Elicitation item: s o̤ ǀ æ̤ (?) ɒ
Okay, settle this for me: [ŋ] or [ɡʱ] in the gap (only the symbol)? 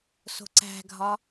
ɡʱ